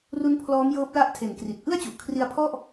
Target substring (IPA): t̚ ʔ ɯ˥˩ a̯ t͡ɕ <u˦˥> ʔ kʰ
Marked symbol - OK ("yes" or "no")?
no